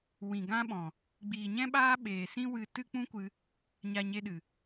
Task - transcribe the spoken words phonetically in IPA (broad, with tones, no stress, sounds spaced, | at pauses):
w ĩ˨ ɡ ã˦ ɓ ɔ̃˨ | ɡ͡b iː˨ ɲ ɛ̃˦ ɓ aː˦ ɓ eː˨ s ĩ˦ w ɨ˧ t ɨ˦ k͡p ũ˦ kʷ ɨ˧ | ɲ a˧ ɲ e˧ ɗ ɨ˨